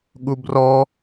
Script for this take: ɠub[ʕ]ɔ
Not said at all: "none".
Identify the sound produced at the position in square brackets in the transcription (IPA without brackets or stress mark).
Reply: r